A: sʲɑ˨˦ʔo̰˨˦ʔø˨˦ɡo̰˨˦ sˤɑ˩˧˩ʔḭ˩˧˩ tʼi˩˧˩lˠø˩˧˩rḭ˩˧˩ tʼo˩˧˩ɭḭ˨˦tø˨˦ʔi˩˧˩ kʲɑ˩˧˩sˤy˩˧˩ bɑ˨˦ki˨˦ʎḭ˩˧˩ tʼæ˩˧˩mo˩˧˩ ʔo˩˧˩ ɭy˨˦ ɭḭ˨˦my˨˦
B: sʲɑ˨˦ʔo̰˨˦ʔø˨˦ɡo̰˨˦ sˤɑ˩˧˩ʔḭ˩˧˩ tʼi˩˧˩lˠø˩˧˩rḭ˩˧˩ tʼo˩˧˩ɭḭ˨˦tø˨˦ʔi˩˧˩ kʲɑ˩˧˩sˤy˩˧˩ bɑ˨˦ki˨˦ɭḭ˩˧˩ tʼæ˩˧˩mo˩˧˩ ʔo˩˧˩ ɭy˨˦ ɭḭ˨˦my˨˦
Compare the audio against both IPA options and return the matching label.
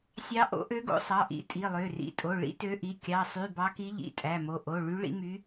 A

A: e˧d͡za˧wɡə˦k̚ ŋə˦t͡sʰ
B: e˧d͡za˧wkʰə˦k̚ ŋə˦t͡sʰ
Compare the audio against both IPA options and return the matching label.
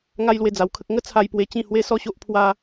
B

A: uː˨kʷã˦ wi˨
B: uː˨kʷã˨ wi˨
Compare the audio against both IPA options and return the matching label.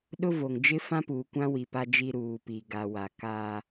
A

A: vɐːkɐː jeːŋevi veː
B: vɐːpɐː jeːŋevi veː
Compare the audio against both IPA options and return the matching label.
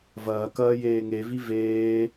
A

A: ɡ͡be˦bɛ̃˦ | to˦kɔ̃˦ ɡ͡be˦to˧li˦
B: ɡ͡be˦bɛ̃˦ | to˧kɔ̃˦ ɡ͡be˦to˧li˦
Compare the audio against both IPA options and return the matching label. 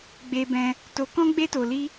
B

